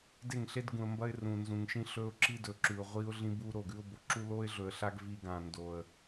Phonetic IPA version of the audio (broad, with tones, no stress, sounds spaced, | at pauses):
d e˦˨ ŋ ɬ e˦ d ɡ ũ˨ ə̯ m b ɐ˦ ɪ̯ r ũ˨ n z ũ˨ ŋ ʃ ĩ˦ ɬ ɵ˦ ʊ̯ ǁ i˦ d ɵ˨ ǁ ʉ˨ ʊ̯ ʁʷ i˦ ʊ̯ ɮ ĩ˦ b u˦ ɾ o˦˨ ɡ ʉ˦ ʊ̯ b o˨ ǁ u˦ l o˦ ɪ̯ ɮ ɵ˨ ə̯ ɬ a˦ ɡ v i˦ ɡ ã˨ n d o˨ ə̯